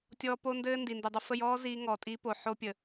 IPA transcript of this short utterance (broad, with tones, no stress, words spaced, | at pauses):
tʲɔ˦ po˦ndɘː˦ ndi˨ndi˨dˤə˧ fə˦˨jɔː˦ ziː˦ŋɔ˨tʼi˦ po˨ ħo˦pʲə˨